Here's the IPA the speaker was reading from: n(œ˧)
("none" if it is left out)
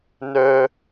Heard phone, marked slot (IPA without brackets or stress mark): œ˧